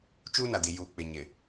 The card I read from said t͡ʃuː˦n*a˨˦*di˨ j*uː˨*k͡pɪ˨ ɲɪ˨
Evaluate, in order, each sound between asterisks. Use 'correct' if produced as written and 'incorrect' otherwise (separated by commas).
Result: incorrect, correct